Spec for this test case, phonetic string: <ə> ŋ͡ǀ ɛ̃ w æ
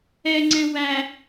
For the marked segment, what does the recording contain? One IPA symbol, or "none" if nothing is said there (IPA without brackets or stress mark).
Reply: ɛ